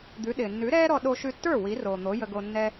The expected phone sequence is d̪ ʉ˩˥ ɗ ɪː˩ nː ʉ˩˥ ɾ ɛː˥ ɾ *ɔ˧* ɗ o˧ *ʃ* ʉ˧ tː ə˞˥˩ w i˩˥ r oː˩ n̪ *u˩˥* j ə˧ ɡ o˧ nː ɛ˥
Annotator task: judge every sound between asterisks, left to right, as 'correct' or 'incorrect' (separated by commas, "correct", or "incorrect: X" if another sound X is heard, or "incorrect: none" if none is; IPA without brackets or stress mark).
correct, correct, incorrect: o˩˥